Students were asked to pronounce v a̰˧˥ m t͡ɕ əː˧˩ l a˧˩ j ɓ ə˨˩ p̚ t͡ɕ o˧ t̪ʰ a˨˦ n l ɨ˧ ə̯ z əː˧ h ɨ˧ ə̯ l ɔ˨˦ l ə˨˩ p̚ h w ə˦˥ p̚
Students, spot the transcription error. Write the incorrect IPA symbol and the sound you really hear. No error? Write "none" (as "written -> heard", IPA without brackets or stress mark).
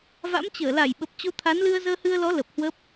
none